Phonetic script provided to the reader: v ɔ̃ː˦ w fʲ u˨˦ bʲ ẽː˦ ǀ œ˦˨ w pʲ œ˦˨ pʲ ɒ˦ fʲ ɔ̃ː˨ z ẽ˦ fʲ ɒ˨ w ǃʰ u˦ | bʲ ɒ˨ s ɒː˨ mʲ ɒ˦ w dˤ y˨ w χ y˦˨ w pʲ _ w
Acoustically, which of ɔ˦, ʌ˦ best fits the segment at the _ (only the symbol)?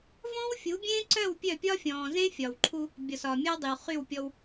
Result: ɔ˦